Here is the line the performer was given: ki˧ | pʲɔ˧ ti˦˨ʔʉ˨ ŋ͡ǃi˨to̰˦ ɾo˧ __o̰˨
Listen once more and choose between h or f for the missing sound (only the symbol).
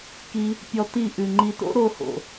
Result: h